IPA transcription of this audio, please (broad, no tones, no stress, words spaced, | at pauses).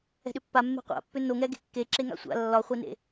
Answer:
ɛ̤ɗʏpːa mːe̤qʷa̰pːʏ noŋɛɡe̤ kːe ǁeŋa̰sʷa̰ lːɒχʷenḛ